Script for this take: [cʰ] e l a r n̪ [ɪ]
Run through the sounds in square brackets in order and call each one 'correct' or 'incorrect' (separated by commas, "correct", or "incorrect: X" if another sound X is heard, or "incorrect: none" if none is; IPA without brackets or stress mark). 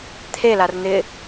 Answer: incorrect: t̪ʰ, correct